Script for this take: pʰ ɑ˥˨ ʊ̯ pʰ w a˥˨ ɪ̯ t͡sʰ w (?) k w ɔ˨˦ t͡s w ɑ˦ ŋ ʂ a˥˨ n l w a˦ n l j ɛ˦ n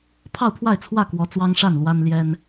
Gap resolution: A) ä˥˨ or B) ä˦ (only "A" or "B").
A